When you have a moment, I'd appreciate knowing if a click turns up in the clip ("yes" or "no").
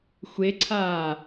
yes